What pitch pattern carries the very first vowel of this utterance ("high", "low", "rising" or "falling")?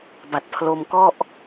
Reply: low